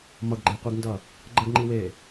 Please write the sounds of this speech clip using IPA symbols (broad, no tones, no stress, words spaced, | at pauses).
mʌɡɡ͡ǃeqʷiɡndʌ | ɡ͡ǃəɡŋ͡ǃiweː